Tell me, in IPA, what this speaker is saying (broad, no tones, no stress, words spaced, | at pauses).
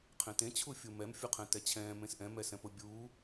qʰẽtẽ t͡ɕʰufʲumɛm fʲuqʰɛ̃tɛt͡ɕʰɛ̃ː mẽsʔɛ̃ mɛsɛ̃pʊ bʲuː